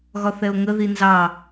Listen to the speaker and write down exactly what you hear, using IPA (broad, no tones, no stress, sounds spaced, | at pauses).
ɣ ɒ θ ɛ o̯ ŋ ə ð i n z ɑ